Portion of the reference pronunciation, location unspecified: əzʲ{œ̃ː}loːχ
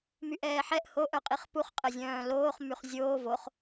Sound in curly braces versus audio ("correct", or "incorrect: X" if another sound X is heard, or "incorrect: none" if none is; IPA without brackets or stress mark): correct